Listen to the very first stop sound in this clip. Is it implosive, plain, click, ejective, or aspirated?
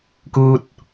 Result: plain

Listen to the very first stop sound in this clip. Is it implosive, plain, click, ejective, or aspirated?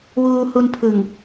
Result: aspirated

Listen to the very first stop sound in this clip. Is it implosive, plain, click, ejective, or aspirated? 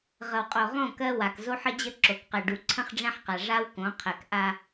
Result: ejective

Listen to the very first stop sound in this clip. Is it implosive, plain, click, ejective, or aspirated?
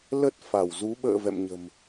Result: plain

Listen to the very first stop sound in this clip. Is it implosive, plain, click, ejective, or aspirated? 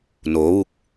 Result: plain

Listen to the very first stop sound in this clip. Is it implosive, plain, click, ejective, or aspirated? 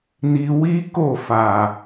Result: plain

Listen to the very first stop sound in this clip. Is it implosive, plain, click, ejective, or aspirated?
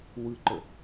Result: click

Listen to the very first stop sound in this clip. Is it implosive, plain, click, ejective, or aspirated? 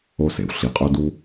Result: ejective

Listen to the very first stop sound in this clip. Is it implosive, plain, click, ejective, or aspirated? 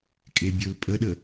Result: ejective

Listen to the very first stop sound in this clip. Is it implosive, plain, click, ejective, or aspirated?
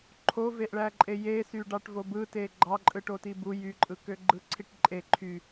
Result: click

